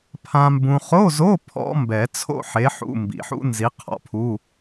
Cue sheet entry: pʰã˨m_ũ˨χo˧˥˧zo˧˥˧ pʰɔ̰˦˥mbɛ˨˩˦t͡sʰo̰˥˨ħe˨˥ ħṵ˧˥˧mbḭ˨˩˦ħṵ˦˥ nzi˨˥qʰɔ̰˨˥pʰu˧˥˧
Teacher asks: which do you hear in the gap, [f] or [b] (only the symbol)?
b